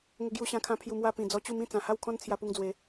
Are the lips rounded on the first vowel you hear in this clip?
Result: no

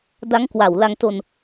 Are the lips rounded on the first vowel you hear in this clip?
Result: no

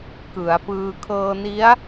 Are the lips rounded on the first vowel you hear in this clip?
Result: no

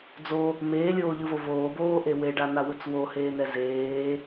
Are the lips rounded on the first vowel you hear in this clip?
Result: yes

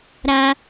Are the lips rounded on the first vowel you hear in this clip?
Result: no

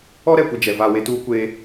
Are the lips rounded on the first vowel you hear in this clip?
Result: yes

